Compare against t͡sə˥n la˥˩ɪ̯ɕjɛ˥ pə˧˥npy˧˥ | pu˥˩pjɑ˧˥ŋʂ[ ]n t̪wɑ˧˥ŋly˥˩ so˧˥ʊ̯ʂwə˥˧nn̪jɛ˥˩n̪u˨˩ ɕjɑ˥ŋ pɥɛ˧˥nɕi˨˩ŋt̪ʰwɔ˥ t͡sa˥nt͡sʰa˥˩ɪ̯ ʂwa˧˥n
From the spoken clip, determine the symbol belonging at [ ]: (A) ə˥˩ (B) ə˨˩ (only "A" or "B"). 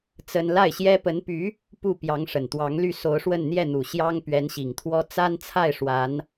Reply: B